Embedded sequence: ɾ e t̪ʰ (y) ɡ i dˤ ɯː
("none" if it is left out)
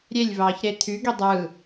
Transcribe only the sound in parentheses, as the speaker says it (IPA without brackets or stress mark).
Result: y